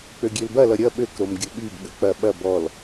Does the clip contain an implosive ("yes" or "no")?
yes